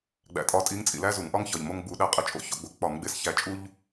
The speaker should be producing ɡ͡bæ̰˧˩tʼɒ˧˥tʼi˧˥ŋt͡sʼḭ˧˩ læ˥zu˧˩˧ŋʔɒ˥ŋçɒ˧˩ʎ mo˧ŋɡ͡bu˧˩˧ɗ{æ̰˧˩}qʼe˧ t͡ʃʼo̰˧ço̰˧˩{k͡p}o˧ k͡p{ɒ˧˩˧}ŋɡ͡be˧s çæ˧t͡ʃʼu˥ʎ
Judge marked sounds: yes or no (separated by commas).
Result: no, no, yes